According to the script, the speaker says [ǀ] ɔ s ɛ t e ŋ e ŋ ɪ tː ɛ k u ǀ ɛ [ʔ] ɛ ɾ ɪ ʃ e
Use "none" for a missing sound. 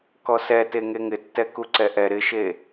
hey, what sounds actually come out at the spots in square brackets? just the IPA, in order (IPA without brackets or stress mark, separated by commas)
k, ʔ